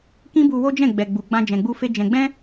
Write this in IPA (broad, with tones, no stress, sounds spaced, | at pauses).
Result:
k ĩ˦ b u˧ w o˦ d͡ʒ ɛ̃˦˨ ɡ͡b ɛ˨ ɡ͡b u˨ ɡ͡b ã˧ d͡ʒ ɛ̃˨ ɡ͡b u˧ f e˧ d͡ʒ ɛ̃˨ ɡ͡b ɛ̃˧